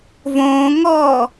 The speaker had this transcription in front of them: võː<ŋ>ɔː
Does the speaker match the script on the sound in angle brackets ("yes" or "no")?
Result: yes